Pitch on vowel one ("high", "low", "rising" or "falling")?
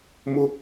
high